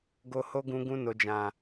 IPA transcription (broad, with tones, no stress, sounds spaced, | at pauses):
ɡ o˧ h o˦ ɡ ũ˧ ɡ ũ˧ n o˨ d͡ʒ ã˨